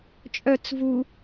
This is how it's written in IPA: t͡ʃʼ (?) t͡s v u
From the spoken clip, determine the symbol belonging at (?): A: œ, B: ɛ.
A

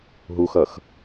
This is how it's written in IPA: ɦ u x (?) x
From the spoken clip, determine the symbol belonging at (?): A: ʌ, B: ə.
A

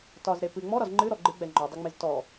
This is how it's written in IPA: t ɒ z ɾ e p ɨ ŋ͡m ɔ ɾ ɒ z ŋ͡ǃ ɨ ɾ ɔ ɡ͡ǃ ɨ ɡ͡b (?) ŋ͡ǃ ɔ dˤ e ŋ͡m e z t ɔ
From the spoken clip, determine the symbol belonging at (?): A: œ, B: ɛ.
B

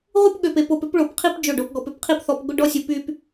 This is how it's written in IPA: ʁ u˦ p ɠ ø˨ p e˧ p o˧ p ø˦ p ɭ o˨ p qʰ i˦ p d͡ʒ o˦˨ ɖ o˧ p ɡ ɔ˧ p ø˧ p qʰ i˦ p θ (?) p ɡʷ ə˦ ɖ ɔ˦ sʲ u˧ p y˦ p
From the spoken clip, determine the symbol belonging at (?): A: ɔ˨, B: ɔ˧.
B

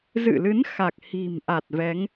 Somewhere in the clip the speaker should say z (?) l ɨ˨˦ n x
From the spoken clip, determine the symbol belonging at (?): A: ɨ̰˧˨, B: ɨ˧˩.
A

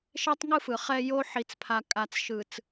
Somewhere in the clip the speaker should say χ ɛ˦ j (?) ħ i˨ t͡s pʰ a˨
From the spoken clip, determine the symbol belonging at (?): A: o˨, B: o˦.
B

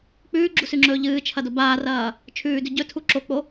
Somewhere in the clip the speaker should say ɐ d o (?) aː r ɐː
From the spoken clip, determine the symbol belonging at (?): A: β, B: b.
B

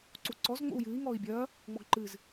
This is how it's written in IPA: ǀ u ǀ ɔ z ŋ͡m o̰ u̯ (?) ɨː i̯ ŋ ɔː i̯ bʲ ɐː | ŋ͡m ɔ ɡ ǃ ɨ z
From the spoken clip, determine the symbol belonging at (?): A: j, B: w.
A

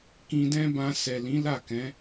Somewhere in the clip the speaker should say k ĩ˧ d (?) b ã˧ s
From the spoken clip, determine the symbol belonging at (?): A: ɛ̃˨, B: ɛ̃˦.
B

